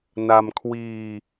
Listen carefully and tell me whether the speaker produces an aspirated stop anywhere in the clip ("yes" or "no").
yes